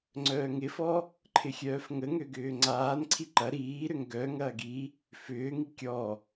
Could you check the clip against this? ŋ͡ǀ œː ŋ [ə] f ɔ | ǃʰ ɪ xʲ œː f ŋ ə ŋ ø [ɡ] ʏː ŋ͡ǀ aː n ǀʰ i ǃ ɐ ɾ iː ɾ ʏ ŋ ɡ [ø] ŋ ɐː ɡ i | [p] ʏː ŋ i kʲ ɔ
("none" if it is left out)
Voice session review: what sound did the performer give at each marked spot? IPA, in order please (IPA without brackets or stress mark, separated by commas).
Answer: ɪ, ɡ, œ, f